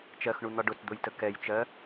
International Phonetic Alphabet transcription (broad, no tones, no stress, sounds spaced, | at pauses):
t͡ʃ ɜ x ɳ u n̪ ɒ ɖ ʊ t d̪ ʊ j t ə k ɛ j t͡ʃ ɜ